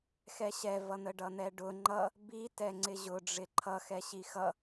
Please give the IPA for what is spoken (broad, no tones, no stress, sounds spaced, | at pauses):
x ɛ ɕ ɛ v ʌ n̪ ə ɖ ʌ n̪ ɛ ɖ ʊ ŋ͡ǃ ʌ | b i t ɛ ŋ͡ǀ ɪ ʑ ʊ ɖ͡ʐ ɪ ǃʰ ʌ x ɛ ɕ i x ʌ